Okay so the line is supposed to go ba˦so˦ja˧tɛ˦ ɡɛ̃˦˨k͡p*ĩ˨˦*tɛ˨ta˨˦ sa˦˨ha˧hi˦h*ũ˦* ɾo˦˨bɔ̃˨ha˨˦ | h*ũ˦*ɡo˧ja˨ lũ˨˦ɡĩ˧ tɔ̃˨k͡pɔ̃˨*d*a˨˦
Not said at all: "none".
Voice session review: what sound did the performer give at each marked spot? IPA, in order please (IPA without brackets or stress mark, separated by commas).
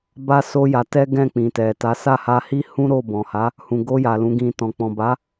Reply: ĩ˨, ũ˦, ũ˨, b